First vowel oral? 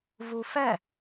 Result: yes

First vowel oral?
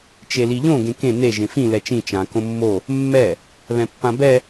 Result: yes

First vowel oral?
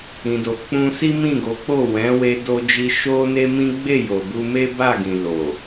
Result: no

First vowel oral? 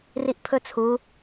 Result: yes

